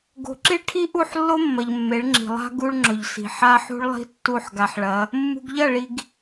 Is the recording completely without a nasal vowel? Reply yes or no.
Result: yes